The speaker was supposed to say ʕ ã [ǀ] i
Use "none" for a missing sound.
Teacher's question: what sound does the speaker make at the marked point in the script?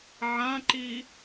ǃ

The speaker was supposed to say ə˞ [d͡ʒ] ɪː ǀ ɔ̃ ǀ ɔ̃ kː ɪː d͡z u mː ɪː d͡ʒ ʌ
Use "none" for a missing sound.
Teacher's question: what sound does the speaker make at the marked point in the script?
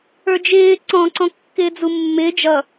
d͡ʒ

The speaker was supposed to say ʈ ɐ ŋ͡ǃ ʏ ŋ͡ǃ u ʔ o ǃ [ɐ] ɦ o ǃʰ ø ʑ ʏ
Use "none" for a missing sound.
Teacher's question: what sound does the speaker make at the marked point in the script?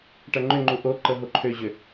ə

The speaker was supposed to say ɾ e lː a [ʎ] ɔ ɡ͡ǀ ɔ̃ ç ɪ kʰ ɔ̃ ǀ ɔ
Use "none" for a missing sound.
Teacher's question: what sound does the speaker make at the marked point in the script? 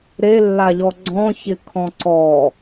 ʎ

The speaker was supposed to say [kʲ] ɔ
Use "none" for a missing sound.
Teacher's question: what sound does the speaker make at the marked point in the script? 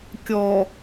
kʲ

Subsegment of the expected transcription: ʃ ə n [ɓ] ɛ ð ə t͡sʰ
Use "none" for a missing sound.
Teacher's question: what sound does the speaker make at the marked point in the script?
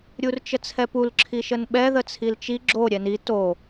ɓ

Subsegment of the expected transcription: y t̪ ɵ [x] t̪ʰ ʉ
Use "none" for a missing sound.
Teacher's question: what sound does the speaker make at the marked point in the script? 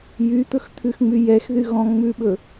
x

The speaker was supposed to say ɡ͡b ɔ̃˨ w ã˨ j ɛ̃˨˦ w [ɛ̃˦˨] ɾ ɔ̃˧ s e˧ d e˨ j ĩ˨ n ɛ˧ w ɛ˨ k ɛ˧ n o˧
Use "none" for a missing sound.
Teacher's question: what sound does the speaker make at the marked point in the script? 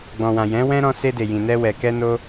ɛ̃˦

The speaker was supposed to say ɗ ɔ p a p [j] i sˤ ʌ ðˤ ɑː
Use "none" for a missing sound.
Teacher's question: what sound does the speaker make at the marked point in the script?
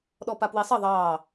w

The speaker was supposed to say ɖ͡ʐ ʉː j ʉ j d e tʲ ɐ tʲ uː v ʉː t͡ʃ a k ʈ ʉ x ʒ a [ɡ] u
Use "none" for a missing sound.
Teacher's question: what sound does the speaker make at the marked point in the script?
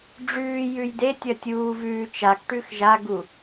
ɡ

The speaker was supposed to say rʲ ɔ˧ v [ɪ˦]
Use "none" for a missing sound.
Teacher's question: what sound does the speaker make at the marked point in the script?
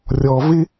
ɪ˦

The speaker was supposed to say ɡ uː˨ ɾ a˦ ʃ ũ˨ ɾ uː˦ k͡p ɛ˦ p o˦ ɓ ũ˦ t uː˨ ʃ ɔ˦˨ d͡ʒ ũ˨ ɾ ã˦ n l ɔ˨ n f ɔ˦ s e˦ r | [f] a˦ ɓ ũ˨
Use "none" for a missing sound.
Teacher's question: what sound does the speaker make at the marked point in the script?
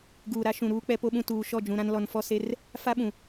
f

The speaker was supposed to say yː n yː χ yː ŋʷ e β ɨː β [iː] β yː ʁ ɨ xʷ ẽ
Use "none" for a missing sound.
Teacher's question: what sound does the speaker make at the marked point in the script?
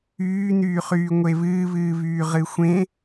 ɨː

